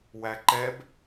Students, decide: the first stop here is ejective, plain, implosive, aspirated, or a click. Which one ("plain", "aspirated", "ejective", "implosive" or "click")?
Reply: click